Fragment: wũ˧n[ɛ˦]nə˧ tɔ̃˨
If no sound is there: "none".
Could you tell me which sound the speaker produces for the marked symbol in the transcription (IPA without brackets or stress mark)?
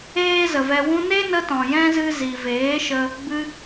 e˦